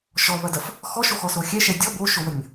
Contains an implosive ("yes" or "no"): no